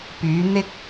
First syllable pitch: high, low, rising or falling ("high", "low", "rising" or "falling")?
rising